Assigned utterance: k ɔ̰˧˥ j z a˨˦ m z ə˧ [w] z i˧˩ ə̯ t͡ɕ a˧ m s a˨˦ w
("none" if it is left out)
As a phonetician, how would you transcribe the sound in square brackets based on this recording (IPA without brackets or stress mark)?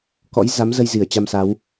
j